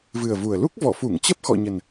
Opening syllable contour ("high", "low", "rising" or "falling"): low